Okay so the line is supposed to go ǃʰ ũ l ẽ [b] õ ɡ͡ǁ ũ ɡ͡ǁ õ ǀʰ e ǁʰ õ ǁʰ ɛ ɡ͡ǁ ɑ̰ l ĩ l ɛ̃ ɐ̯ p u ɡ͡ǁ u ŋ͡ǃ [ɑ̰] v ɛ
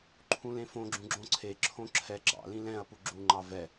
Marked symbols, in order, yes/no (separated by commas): no, no